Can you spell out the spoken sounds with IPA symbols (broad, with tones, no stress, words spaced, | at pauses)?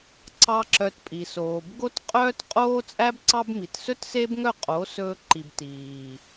ǀɑ˦ǁœ˧tpʼi˨soː˨b ɡo˦tqʼœː˦t qʼoː˦t͡sʼæ˦b ǀɑ˦bmi˨t sɵ˦tse˦bŋœ˦˨ qʼo˨˦ sɵː˦ǃi˧b tiː˨